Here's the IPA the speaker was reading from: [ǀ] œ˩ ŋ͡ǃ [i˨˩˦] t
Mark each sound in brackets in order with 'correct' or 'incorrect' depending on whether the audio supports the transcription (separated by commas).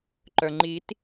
incorrect, correct